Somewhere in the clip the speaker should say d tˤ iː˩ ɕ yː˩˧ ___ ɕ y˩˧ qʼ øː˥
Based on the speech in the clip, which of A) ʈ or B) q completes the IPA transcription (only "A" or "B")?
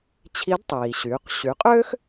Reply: B